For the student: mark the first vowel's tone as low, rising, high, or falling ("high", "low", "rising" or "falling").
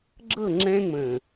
falling